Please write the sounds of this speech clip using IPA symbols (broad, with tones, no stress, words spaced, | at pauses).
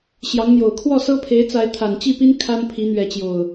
ɕjɑ˨˦ŋn̪jo˨˩ʊ̯ kʰwɔ˥˨sɤ˦pʰe˨˦ɪ̯t͡sa˨˦ɪ̯ t̪ʰa˨˩nt͡ɕi˥˨pi˦n kʰa˦n pʰi˨˦n̪ɥɛ˨˦t͡ɕjo˨˩ʊ̯